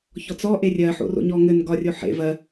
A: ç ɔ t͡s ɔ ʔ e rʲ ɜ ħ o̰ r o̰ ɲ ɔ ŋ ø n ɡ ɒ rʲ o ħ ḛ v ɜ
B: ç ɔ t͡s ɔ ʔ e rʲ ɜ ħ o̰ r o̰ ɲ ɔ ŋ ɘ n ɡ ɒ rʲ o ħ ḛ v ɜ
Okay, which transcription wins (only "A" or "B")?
B